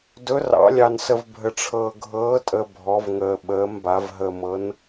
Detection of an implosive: present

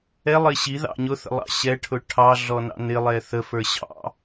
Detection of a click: absent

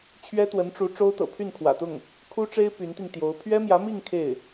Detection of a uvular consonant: absent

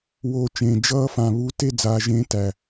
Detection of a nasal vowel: present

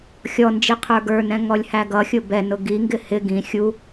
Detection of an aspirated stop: present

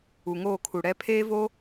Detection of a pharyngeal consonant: absent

